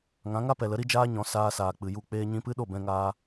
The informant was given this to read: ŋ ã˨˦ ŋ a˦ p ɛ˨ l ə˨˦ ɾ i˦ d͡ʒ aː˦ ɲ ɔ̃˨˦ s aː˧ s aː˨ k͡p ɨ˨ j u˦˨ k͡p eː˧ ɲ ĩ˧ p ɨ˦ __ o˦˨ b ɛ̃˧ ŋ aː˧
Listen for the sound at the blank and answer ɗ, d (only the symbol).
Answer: ɗ